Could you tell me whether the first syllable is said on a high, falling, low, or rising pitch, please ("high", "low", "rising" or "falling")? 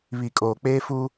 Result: low